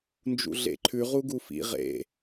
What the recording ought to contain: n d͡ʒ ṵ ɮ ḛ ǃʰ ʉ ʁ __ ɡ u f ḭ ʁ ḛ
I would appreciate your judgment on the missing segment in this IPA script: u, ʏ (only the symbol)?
u